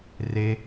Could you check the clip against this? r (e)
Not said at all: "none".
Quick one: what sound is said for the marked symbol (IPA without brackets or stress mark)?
e